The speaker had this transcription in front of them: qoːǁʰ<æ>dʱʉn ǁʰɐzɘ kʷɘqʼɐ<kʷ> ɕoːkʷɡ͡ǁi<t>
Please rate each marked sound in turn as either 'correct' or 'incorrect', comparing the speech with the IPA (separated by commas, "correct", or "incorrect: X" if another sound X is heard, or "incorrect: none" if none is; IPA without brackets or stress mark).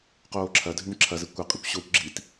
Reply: incorrect: ɐ, correct, correct